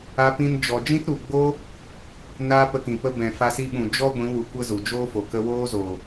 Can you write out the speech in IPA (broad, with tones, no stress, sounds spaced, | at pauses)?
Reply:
a˧ p ĩ˧ n d͡ʒ ɔ˨ d͡ʒ ĩ˦ t ɾ u˨ ɡ͡b oː˦ | n aː˧ p ə˧ k ĩ˨ p ə˧ b ɛ̃˨ f a˧ s i˧ ɓ ũ˨ d͡ʒ ɔ˦ ɡʷ ĩ˨˦ w u˨ kʷ ə˦ z u˨ d͡ʒ oː˦ f o˨ k ə˧ w oː˦ z oː˨